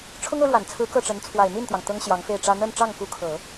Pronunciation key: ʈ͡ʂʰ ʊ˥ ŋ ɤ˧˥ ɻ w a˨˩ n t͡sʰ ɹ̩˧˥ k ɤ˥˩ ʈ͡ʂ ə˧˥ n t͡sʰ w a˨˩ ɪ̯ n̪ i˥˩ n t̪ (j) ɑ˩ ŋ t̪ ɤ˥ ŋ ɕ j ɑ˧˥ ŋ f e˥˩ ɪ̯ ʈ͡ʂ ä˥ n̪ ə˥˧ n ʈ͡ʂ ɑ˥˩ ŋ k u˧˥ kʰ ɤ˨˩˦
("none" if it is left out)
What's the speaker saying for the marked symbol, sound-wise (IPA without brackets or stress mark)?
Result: j